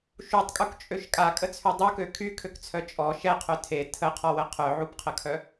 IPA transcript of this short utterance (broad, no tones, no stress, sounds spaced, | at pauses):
ʃ u tˤ kʼ u k t͡ʃʼ ø ʃ kʼ a kʼ ə t͡sʰ y dˤ u k ø kʰ y kʰ ø k t͡sʰ œ t͡ʃʼ ɔ ʃ ɛ qʰ œ tʰ e tʰ ə qʰ ɔ w ə qʰ œ ʕ u p qʰ ə kʰ œ